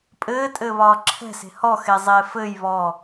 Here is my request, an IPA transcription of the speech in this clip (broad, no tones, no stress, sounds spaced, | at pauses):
pʼ ɘː tʼ ɘː β ɒː ǁʰ ɛ̤ s e̤ h ɔ x e zˤ eː f ɘː j β ɔ